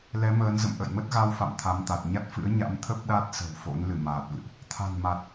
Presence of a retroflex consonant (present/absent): absent